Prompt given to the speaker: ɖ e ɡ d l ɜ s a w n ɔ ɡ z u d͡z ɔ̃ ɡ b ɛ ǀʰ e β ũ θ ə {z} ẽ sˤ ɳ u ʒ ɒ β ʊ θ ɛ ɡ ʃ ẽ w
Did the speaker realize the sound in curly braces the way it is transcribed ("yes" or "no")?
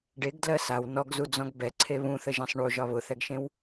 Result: no